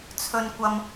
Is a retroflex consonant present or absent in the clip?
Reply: absent